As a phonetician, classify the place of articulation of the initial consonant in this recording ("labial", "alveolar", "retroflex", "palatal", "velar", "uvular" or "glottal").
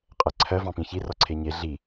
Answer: uvular